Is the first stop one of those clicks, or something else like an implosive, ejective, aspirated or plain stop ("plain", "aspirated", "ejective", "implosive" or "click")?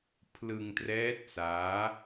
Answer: aspirated